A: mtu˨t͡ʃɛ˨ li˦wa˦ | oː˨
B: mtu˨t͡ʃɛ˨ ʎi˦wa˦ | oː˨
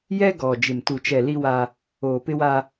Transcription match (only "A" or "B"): A